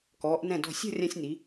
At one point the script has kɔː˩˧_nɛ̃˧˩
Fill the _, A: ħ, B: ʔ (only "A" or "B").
B